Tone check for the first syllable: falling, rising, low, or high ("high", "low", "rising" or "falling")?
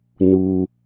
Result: low